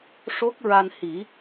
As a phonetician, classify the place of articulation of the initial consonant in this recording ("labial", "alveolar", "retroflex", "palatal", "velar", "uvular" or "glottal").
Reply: retroflex